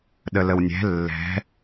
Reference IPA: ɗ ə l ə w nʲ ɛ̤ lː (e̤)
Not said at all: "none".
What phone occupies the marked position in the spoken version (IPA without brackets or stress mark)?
ɛ̤